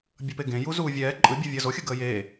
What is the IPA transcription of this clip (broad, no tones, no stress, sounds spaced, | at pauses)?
bʲ ʌ p e ɡ ẽ j u z uː vʲ ɛː ǃʼ ɯ bʲ ɯ vʲ əː z o xʲ ə ɡ əː j e